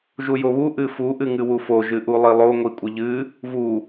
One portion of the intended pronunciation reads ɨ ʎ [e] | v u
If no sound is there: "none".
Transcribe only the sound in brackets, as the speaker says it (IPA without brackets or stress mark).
ɨ